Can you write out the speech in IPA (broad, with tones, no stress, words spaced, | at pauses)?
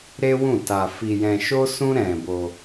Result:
ɾe˦wũ˦˨ta˧ fi˧jɛ̃˧ ʃo˦sũ˦ ɾɛ̃˧bo˧